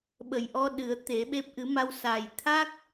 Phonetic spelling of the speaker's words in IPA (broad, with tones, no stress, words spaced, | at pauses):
ɓə˨˩jʔɔ˧ ɗɨ˨˩˦ə̯t̪e˨˩˦ɓe˦˥p̚ ʔɨ˨˩˦ma˧w sa˨˩j t̪ʰa˦˥k̚